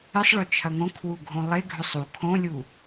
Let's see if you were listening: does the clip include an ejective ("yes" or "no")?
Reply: no